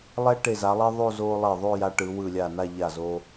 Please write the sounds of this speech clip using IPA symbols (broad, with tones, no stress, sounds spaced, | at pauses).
lˠ ɛ˥ ʈ e˧˩ z a˩˧ lˠ ɛ˥ ðˤ o˥˧ z o˧ lˠ e˧˩ ðˤ o˥˧ j a˧ ʈ ɯ˩˧ w ɯ˧˩ lʲ a˧˩ n a˥˧ ʎ a˧˩ z o˧